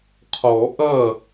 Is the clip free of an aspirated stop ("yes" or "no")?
no